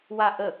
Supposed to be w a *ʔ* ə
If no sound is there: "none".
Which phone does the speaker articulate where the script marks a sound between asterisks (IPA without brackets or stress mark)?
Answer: ʔ